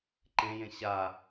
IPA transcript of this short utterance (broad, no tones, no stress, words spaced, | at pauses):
ǃẽjẽ ɕa